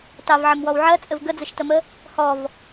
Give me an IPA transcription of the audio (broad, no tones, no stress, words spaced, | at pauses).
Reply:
tɑvʕəmwɔw ʕɜt͡sʼɘv ɡəd͡zəʃtəmə | hɔv